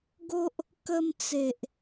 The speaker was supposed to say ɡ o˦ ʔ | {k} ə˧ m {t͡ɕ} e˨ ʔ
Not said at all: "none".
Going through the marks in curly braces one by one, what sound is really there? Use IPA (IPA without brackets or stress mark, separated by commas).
k, t͡s